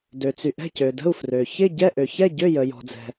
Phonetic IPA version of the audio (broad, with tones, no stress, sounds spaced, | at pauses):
d ø˩ t͡s y˩ ʔ ɛ̤˥˩ c ø˩ d ə̤˥˩ u̯ f r ø˩ ç ɪ˥˩ ɟ ɛ˥˩ ʔ ø˩ ç ɛ˥˩ ɟ ø˥˩ j ə˩ j ɔ̤˩ d͡z ɛ̤˩